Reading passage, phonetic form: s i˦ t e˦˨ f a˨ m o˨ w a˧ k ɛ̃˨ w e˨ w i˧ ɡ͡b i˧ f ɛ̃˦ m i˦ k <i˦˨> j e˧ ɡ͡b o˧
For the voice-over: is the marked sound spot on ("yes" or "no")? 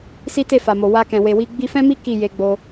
yes